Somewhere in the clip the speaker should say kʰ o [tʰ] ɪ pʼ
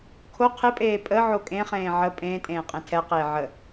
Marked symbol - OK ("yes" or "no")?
no